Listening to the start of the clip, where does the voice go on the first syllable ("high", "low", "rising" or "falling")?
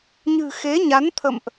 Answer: low